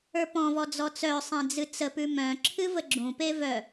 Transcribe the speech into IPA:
ə˞pɔ̃vɔ d͡zɔt͡sœ sˤẽd͡zɨt͡sə pʉmœ̃ ǁʰɨvəɡ͡ǁũpe vœ

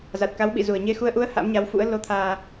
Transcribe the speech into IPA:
za˨˩t̚ka˨˦wɓḭ˧˨ zu˨˩ə̯ɲe˧xu˧ə̯ ʔu˨˦ə̯ ha̰˧˥mɲa˨˦wfṵ˧˥ə̯ lo˧t̪ʰaː˧

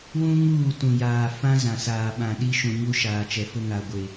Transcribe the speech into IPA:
wũ˦ŋuː˦˨ tũ˨jaː˨ fã˦zã˨saː˨ ɓã˨ɗi˦ʃũ˨ɲu˦ ʃaː˨t͡ʃɛ˨fʊ˦ ŋa˨ɡʷe˨

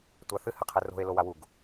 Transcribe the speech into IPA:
tʷaθɨ hɘqʰɘro̤e̯ lowawuɡ

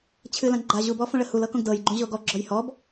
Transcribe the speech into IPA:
t͡ɕʰɨlã ɡ͡ǃaʑubɔ fõɭəhulɤ kõɡdɤjɡ͡ǃũ ʑoɡɔɡ͡ǁɔj hɔb

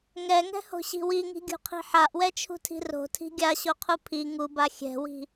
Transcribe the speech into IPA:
ŋɛŋɛ̤ho̤ɕi̤ wiŋi̤ɡʲṳqʰi̤ ħaʔwɛt͡ʃʰṳtʰi̤ ro̤tʰi̤ ɡʲaɕoqʰu pʰi ŋuba xʲɛ̤wi̤

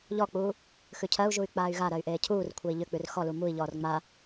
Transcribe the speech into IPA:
ʎɔk͡puː | xʉcʰɜu̯ʒuy̯ k͡paːy̯ɣa ɾɜy̯ʔeːcʰuːr kʷʰei̯ʎʏk͡pʉr xɔlu mui̯ʎɔːr ŋ͡ma

